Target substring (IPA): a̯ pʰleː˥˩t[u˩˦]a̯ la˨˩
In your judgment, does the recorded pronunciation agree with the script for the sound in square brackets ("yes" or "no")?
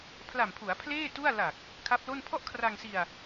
no